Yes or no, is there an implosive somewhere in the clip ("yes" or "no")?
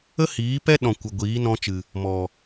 yes